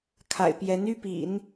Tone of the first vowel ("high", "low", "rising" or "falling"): low